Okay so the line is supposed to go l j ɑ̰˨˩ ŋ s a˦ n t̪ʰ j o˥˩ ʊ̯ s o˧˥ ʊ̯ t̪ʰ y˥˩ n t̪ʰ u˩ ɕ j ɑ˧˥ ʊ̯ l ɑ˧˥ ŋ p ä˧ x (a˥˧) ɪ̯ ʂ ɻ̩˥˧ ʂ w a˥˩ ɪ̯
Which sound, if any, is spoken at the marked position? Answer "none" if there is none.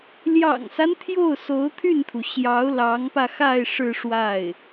a˥˧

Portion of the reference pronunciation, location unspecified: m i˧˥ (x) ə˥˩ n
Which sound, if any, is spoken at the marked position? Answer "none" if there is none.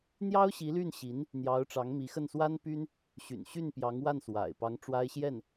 x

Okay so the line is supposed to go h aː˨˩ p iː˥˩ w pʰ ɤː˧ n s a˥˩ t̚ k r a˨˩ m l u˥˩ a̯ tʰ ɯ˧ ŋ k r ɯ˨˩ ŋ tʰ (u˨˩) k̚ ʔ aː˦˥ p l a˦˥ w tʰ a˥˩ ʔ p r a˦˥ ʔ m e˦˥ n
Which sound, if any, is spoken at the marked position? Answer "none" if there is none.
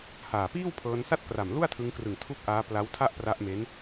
u˥˩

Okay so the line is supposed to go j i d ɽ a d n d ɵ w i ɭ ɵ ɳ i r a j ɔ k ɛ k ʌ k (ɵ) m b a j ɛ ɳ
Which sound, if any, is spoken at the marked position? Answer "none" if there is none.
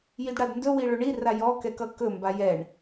ɵ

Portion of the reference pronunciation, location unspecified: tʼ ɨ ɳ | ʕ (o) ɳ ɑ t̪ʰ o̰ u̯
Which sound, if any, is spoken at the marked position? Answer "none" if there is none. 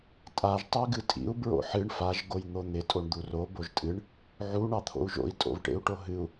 u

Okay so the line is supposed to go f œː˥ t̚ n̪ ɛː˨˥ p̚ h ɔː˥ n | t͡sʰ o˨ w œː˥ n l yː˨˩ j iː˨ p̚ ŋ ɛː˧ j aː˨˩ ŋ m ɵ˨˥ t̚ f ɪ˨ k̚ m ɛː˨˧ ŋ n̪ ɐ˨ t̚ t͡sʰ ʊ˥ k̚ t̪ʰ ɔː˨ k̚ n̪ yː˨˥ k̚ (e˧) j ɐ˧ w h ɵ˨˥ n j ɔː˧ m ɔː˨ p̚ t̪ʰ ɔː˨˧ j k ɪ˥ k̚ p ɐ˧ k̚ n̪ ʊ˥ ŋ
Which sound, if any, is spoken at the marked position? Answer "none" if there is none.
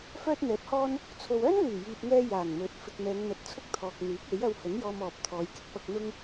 e˨˥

